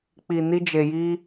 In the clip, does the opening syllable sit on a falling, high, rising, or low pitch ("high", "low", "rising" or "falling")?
low